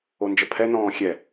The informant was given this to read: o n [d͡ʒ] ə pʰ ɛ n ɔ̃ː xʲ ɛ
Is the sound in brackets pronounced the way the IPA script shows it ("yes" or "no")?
yes